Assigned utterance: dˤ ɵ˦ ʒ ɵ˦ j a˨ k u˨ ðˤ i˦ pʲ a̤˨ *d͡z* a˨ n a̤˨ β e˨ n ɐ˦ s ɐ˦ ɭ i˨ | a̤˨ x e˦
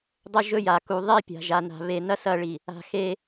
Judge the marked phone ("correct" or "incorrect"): incorrect